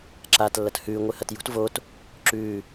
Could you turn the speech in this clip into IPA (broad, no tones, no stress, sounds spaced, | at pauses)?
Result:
ǁ a t lː ɐ t h ʉː ŋʷ ɨ h ɐ t j ṳ t v o t | ǁ ʉː